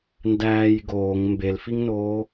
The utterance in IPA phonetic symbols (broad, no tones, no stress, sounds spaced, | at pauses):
n d æː j ɡ oː ŋ m b e l f i ŋ n oː